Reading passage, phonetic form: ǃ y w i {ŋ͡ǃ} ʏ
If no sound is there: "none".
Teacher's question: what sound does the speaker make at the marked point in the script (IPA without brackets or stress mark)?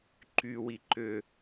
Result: ǃ